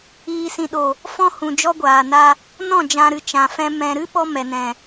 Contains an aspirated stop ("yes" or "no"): no